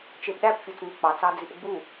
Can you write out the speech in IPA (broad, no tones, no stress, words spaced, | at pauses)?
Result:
t͡ʃepɗæpfʲot͡sŋɯ k͡pɑt͡sɑd͡zip ɡ͡bu